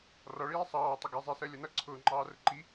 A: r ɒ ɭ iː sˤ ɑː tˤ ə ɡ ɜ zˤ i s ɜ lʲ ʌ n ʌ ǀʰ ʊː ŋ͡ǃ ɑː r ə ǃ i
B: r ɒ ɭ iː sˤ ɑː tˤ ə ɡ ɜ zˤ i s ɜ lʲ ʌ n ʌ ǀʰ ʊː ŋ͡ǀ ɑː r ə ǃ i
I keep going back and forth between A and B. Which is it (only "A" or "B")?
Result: A